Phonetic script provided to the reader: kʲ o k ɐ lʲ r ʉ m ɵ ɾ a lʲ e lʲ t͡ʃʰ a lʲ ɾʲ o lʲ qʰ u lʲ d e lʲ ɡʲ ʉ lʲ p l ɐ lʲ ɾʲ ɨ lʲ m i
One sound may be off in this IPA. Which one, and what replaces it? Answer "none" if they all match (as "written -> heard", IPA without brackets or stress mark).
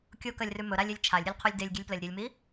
none